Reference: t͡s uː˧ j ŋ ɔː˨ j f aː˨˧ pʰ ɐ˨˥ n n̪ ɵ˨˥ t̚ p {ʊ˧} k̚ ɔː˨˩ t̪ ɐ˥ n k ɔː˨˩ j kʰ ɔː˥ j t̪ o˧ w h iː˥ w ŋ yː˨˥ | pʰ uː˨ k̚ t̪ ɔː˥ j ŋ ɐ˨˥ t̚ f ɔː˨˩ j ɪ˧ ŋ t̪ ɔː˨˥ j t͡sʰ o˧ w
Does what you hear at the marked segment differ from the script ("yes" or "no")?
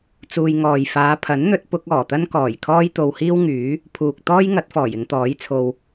yes